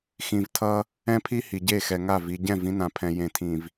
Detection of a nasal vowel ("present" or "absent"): present